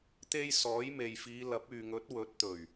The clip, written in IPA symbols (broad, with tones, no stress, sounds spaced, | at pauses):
t̪ e˧ j s ɔː˨˥ j m e˨ j f iː˨˧ l ɐ˨˥ p̚ yː˨ ŋ ɵ˨˥ t̚ w ɵ˨˥ t̚ t̪ ɵ˨˩ ɥ